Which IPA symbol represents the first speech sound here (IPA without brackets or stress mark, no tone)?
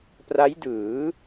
p